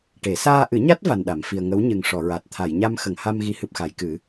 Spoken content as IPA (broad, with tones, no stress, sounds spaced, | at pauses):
ʈ e˨˩˦ s aː˧ ʔ ɨ˨˩˦ ɲ a˦˥ t̚ v a˧ n ɗ a˨˩˦ m f i˧ ə̯ ŋ ə˧˥ w ɲ ɨ˨˩ ŋ ʂ ɔ˨˩˨ ɹ a˨˩ t̚ t̪ʰ a˨˩˨ j ɲ a˧ m x ə˨˩˨ ŋ h a˧ m ɣ i˧˥ h ɨ˨˩ p̚ x a˨˩˨ j k ɨ˨˩˦